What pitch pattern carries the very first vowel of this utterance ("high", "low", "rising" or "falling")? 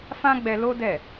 high